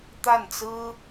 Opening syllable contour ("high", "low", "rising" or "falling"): falling